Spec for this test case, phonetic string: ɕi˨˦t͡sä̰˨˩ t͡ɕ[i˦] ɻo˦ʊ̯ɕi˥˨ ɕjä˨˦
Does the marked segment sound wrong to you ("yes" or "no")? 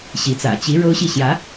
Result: yes